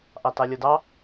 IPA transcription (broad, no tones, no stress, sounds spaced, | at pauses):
ʔ ɑ t ɑ lʲ ɤ d ɑ